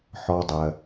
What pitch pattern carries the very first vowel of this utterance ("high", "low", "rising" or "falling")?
high